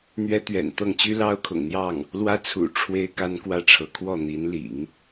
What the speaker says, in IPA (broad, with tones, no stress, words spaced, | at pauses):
n̪ɥɛ˥t̪ɥɛ̰˨˩nt̪ɤ˥˩ŋ t͡ɕy˥lɑ˥ʊ̯kʰʊ̰˨˩ŋn̪jɑ˥˩ŋ | lwä˥t͡sʰṵ˨˩ ʈ͡ʂʰwe˥ɪ̯ka˥nkwä˥˩ʈ͡ʂʰɤ˧˥ kʰwɔ˥˩ n̪i˧˥nlḭ˨˩˦ŋ